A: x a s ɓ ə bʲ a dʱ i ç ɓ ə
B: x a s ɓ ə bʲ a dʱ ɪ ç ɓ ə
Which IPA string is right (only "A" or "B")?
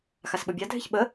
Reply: B